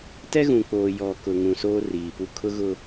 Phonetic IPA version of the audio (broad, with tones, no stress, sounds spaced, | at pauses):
t ɛ˦ ɣ ũ˨ k͡p oː˨ j ɔ˨ k ʊ˨ ŋ ũ˨ s oː˦ r iː˨ p u˦ kʰ ʊ˦ ɣ ʊ˦